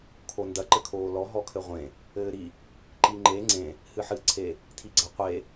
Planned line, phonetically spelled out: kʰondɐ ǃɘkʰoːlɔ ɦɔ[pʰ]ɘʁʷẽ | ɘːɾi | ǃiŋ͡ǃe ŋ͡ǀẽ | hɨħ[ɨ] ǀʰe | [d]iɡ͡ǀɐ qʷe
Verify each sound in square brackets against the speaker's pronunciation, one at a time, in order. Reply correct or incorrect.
incorrect, correct, incorrect

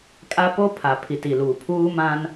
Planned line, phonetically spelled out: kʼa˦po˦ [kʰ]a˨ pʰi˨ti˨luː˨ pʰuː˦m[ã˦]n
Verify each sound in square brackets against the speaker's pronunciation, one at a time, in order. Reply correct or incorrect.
incorrect, correct

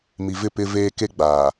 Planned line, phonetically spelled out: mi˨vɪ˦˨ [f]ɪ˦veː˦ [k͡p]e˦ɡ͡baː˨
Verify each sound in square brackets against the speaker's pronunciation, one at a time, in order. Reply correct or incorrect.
incorrect, incorrect

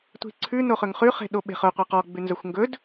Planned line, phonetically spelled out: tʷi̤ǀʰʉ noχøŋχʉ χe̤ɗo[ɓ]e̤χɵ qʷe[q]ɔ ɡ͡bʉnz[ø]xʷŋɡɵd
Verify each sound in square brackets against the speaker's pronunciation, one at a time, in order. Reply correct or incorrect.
correct, correct, incorrect

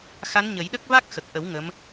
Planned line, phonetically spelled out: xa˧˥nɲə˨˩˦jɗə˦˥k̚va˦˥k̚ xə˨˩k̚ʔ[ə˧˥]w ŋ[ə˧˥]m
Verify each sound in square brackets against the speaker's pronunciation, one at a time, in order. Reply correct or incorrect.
incorrect, correct

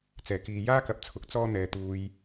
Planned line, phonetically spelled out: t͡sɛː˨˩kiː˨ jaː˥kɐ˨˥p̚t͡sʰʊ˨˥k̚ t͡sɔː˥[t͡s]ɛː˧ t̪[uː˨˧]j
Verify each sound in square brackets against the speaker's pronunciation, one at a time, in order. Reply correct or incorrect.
incorrect, incorrect

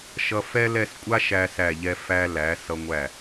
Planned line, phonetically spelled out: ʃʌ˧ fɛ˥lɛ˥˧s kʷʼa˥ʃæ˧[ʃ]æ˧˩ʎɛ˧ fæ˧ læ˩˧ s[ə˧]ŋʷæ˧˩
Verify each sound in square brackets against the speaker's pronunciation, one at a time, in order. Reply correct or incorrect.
incorrect, incorrect

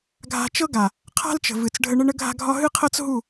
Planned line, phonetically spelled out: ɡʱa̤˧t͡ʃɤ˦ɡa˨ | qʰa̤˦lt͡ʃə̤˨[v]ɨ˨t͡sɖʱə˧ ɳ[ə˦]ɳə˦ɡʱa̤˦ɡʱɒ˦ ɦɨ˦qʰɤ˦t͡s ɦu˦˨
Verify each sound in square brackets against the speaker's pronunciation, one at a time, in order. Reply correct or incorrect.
correct, correct

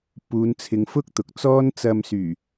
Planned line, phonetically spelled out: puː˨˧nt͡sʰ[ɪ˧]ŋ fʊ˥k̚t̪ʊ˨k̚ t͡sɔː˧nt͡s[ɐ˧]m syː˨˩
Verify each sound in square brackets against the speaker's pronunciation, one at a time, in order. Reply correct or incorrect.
correct, incorrect

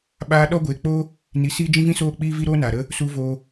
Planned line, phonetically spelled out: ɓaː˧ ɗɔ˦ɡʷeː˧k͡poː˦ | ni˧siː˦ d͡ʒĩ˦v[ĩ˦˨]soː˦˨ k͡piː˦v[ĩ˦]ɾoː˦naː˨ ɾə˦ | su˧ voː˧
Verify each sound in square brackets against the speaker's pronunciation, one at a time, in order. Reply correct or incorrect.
incorrect, incorrect

